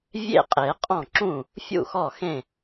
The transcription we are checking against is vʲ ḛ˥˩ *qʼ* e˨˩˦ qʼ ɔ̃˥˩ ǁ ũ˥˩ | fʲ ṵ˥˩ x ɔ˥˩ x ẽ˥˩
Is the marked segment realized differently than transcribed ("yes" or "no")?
no